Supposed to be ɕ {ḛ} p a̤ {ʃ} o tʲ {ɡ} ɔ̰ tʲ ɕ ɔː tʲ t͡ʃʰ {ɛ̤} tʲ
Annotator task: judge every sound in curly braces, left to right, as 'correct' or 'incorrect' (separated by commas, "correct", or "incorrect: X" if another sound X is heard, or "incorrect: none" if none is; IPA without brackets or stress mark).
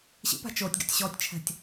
incorrect: ḭ, incorrect: t͡ʃ, correct, correct